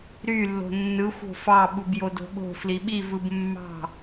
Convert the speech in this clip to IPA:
ɾ y lː o̤ nː ɯ xʷ o̤ f ɑ ɓ u b j o d o̤ ɓ o̤ f l i ɓ i v ɯ b mː ɑ̤

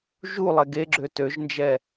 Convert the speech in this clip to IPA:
ʒ u lˠ ɛ ɡ e ɡ͡ǁ ø t ø ʒ n d͡ʒ ɛ

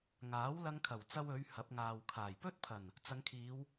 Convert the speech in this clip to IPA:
ŋ aː˨˥ w l ɐ˧ ŋ kʰ ɐ˨˩ w t͡s ɐ˧ w ɵ˨˧ ɥ h ɐ˨˥ p̚ ŋ aː˨ w kʰ aː˨˩ j p ɵ˥ t̚ pʰ ɐ˨˩ n | t͡s ɐ˨˧ ŋ kʰ iː˨˧ w

